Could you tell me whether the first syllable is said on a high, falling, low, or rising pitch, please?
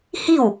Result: falling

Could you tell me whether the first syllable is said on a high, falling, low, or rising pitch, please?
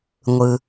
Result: low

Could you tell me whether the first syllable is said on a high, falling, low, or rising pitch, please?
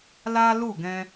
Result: high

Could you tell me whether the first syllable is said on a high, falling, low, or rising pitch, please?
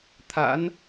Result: rising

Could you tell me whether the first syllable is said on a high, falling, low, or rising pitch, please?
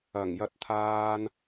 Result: low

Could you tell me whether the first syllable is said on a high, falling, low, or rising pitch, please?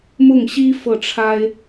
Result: falling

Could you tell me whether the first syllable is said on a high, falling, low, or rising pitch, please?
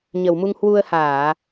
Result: low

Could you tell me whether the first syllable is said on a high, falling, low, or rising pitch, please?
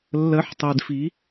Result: rising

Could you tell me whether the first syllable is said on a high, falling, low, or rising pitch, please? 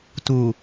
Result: low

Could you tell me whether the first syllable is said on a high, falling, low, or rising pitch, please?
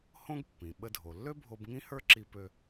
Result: high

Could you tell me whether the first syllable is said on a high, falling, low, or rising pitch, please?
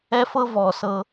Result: high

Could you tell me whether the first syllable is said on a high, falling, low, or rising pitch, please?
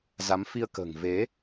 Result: rising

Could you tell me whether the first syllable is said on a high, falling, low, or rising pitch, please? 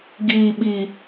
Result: low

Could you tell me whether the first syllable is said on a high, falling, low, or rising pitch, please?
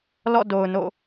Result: falling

